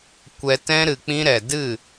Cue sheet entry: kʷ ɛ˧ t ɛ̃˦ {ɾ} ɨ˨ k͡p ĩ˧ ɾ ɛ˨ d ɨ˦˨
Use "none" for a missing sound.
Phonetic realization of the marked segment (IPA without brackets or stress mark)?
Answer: ɾ